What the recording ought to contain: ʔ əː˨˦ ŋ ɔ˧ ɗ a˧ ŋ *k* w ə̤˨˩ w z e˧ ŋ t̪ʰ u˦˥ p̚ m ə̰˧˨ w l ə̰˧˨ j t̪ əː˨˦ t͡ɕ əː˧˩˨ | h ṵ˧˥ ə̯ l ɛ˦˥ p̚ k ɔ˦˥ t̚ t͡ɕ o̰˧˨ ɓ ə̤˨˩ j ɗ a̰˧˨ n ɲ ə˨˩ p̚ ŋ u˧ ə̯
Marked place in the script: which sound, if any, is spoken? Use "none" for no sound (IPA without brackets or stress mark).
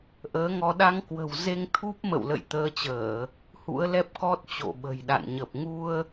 k